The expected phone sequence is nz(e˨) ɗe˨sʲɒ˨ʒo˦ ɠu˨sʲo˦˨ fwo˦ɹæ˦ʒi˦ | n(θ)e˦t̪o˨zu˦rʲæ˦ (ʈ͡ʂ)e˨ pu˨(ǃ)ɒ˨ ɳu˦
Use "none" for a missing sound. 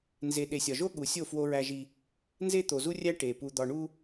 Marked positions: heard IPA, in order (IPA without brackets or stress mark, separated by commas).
e˨, z, ʈ, d̪